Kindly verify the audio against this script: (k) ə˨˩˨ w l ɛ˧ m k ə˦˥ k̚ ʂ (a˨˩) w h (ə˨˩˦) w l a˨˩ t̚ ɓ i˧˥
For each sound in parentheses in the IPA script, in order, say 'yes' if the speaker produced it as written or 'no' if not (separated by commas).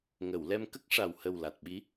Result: no, yes, no